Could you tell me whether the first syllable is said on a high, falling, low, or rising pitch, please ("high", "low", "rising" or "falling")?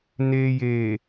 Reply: low